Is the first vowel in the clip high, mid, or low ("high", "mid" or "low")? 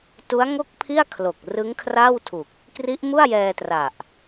high